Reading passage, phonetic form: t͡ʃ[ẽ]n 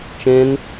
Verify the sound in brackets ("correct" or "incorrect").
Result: correct